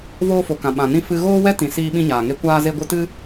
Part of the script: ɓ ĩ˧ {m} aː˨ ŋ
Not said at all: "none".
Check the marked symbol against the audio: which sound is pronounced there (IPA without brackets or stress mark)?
ɲ